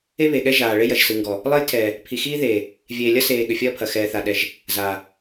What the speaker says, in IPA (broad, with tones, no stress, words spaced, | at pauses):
e˦βe˨ɠɛ˦ ʒaː˨ ɭe˦jɐ˨ʒ sɯ˨ŋɡɔ˨ | lˠe˦jtʰɛː˨ | pʰi˨xiː˦ðeː˨ | vʲeː˨lʲɐ˦seː˨ ɠʏ˨fʲɐː˦pʰɐ˨ xɛː˨θa˨ ɗɛ˨ʒ | zaː˨